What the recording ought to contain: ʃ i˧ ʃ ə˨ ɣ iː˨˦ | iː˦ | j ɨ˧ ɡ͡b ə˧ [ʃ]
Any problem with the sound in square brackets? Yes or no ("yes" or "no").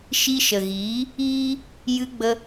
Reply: yes